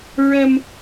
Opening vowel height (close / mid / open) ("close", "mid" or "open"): mid